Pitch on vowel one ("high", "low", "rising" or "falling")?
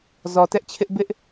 low